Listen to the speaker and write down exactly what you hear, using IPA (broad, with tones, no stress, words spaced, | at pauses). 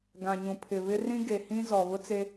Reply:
ɡã˨ɲũ˨pʰɪ˨βɪ˦ rĩ˦ɡe˨hĩ˦ zɔ˨ βʊ˦t͡se˦